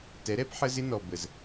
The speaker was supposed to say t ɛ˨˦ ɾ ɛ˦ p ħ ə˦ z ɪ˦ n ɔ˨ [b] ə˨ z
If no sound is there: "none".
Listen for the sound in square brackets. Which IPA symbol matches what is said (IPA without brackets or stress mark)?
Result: b